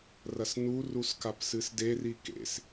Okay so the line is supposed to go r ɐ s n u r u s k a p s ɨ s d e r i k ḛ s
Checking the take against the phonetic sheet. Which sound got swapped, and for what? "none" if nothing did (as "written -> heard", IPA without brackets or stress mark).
none